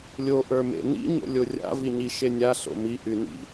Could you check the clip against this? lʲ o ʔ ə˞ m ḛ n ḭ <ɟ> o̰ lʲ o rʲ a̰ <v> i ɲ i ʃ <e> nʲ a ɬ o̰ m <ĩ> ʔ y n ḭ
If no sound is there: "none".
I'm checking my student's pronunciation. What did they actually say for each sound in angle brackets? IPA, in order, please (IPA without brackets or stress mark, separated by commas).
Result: ɲ, v, e, i